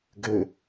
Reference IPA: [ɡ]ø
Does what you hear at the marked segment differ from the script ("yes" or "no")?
no